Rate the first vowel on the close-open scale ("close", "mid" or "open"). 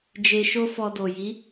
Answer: mid